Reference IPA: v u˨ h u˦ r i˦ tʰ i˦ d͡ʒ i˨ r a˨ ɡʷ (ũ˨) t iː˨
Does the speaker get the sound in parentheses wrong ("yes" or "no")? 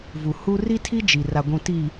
no